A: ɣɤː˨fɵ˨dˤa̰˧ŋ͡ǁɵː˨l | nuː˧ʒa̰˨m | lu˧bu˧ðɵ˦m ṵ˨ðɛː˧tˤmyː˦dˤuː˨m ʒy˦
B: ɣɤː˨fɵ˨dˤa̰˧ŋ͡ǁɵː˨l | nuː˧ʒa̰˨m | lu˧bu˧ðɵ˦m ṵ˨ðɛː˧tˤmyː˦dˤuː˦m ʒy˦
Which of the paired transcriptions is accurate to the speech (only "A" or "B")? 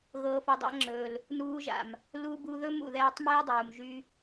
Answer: A